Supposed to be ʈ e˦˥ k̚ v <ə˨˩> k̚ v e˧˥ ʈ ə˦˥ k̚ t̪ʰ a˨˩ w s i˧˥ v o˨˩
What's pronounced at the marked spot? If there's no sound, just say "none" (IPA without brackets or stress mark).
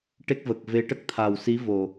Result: ə˨˩